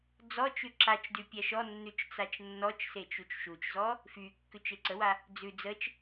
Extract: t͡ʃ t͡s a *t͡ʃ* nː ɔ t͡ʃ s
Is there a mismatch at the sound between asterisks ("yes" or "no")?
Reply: no